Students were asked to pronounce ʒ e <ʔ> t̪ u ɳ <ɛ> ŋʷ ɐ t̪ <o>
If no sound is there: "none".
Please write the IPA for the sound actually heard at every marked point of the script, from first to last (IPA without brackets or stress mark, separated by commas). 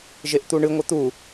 ʔ, ɨ, u